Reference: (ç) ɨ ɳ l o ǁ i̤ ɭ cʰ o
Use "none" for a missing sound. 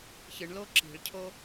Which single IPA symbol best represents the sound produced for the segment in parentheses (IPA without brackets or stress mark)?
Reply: ç